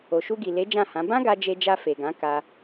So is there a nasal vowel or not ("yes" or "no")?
yes